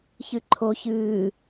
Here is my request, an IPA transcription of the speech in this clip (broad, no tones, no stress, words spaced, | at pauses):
çɨǃʰo çɨː